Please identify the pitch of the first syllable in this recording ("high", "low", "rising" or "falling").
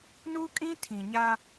high